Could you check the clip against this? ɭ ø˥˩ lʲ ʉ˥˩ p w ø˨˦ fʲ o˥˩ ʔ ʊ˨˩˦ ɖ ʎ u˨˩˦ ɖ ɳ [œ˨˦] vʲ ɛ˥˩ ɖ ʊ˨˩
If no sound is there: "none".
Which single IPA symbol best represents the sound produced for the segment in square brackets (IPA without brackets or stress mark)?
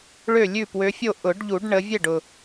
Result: ə˨˦